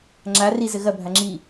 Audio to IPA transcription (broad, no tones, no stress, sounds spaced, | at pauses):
ŋ͡ǁ a r i z ɘ ɣ ɐ bʱ a ŋ͡ǁ i